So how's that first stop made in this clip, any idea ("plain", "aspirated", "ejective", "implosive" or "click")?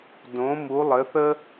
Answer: plain